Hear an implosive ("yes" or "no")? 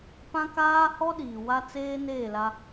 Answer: yes